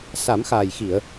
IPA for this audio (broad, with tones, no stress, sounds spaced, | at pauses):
s a˨˩˦ m x aː˨˩ j x i˨˩˨ ə̯